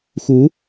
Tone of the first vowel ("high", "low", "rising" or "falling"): rising